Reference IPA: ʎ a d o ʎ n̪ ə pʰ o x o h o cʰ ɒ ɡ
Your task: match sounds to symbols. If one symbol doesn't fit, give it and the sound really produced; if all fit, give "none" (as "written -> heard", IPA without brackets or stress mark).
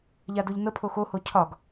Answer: none